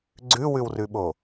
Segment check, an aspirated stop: absent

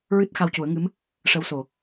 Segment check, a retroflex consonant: present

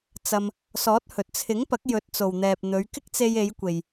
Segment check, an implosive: absent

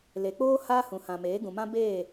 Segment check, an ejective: absent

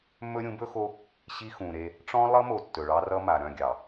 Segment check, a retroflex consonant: present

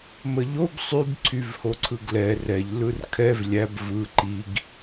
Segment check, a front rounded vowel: present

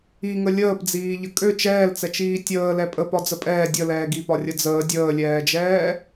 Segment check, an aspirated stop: absent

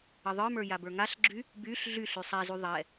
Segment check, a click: present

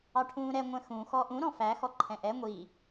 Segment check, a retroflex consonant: present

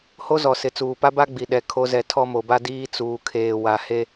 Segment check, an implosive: present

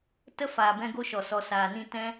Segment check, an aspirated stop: absent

